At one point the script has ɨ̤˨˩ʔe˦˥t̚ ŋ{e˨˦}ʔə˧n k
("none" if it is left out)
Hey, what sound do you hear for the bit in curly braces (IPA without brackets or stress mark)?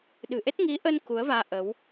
i˨˦